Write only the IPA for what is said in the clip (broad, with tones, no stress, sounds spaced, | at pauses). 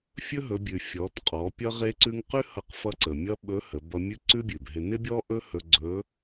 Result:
fʲ ɵ˥ ɦ ɵ˩˧ bʲ ʉ˩ fʲ ɔ˩˧ t qʼ ɔ˩˧ pʲ ʌ˥ ʁ e˥ ǀ ʉ˥ ŋ q ʉ˥ h ʌ˧ q f ʌ˧˥ ǀ ə˩ mʲ ʌ˥ ɓ ɵ˧˥ h ə˩˧ b ʌ˧ mʲ ʉ˥ ǀ ʉ˥ bʲ ʉ˩ b ɦ ɪ˧ n ɪ˥ bʲ ɔ˥ ʔ ɵ˥ h ɵ˧ ɡ͡ǀ ɵ˧˥